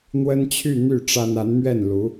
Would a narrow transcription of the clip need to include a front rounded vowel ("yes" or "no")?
yes